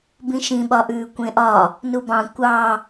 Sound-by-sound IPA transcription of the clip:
bĩʃĩɓɒʔʉː kʷẽʔɒ | nubɑ̃ kʷɑ

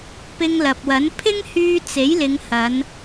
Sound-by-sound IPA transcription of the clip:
pɪ˧ŋlɐ˨p̚wɐ˨˥n pʰɪ˥ŋhyː˧ t͡se˨˥jlɪ˨˧ŋhɐ˨˧n

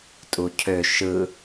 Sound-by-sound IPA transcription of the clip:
tʼucʰø ʃɯ

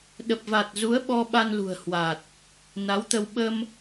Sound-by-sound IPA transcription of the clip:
ɗə˨˩p̚va˨˩t̚zu˨˦ə̯ ɓɔ˧ɓa˧nlṳ˨˩ə̯ hwa˨˩t̚ | na˨˦wt̪ə˧w ɓə˧m

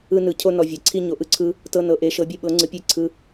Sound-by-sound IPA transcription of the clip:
ɯ˦nɯ˨˥ cʰo˦ nɔ˦vʲɛ˨˥ ǀʰi˦ɲo˨˥ʔɯ˦ǀʰɯ˦ | tɤ˦nɤ˨˥ʔe˨˥ ʃɤ˨˥bʲe˦ɓɤ˨˥ŋ͡ǀɯ˨˥ pʲe˦ ǀʰɯ˦

